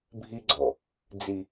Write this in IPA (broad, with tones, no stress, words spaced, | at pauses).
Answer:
bʱi˦ɡ͡ǀɔ˨ | d͡zi˦